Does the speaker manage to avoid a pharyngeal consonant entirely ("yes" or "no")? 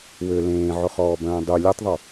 no